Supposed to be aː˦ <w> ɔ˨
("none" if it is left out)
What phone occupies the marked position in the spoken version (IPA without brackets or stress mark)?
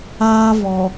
v